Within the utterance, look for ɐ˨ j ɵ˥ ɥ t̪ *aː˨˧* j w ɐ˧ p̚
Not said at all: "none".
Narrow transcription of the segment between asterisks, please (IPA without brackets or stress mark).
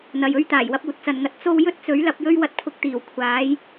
aː˨˩